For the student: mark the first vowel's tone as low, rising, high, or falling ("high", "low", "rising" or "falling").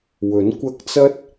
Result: rising